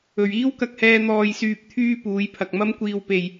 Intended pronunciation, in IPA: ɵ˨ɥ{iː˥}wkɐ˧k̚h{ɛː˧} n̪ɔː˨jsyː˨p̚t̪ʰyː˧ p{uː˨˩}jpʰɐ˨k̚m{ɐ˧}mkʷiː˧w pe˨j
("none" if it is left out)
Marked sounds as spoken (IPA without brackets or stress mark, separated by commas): iː˥, ɛː˧, uː˨˧, ɐ˥